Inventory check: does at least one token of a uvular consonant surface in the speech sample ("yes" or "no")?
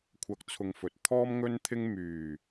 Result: no